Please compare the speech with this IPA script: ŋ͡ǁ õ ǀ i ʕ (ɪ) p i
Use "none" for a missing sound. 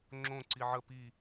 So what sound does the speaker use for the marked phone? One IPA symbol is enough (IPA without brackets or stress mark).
ə